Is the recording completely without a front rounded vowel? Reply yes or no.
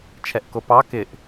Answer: yes